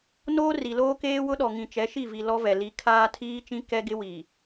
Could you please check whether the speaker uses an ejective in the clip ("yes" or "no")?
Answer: no